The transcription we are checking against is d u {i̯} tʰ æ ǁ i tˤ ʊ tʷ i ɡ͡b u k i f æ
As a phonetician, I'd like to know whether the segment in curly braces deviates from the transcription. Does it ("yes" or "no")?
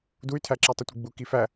yes